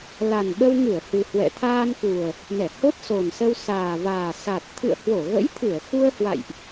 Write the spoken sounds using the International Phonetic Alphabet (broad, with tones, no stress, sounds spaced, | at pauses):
l a˨˩ n ɓ ə˧ w ŋ ɨ˧˩ ə̯ h ɨ˨˩ h w ɛ̰˧˨ t̪ʰ aː˧ n k u˨˩ ə̯ | n ɛ˧˩ h o˦˥ t̚ s o˨˩ n s ə˧ w s aː˨˩ v aː˨˩ s a˨˩ t̚ t̪ʰ ɨ̰˧˨ ə̯ h w o˧˩ ɣ ə̰˧˥ j t̪ʰ ɨ˧˩ ə̯ x u˧ ə̯ h w a̰˧˨ j ʔ